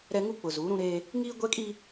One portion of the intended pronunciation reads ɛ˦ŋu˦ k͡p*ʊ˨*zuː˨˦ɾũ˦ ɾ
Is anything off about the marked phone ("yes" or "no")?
no